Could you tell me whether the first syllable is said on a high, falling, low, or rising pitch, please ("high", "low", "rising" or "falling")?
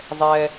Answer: high